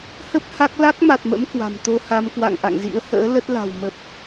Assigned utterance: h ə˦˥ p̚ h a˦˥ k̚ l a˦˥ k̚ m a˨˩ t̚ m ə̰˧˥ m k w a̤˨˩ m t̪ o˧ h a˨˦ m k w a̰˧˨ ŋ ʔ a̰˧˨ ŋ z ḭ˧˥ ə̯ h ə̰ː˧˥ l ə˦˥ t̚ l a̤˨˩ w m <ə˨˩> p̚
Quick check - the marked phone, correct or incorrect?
correct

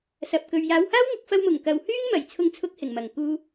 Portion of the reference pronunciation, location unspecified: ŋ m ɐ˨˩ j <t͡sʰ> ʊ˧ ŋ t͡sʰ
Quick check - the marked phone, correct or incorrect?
correct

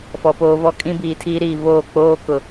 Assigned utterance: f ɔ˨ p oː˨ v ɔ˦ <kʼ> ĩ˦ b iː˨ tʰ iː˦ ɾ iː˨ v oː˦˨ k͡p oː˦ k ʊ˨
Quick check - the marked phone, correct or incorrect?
correct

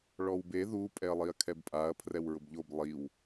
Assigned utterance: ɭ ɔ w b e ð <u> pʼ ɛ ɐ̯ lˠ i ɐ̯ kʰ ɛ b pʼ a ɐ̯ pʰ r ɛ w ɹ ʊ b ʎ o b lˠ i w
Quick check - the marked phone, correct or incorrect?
correct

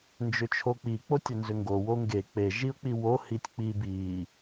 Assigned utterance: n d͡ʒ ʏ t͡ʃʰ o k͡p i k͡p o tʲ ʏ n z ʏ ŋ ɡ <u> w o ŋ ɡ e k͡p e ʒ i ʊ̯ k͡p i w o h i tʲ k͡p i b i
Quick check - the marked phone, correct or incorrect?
incorrect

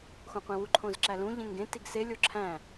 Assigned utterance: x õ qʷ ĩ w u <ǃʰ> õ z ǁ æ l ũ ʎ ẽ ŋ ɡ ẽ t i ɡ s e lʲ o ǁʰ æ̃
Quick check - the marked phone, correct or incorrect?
correct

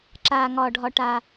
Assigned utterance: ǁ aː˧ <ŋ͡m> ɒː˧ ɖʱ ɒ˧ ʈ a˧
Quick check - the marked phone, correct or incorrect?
incorrect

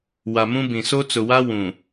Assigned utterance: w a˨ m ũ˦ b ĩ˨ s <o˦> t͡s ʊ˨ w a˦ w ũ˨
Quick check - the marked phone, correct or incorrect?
correct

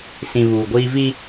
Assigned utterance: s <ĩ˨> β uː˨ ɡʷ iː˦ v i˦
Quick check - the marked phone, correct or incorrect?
correct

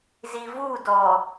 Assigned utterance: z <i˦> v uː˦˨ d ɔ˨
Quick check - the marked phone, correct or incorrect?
incorrect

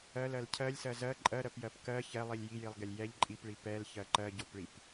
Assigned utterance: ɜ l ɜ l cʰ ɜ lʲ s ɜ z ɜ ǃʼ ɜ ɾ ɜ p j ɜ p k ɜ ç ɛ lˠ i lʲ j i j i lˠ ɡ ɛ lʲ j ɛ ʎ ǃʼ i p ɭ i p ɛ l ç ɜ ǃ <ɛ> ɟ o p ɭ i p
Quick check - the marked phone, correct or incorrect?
incorrect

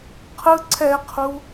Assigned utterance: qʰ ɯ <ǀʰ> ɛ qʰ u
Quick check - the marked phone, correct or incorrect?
correct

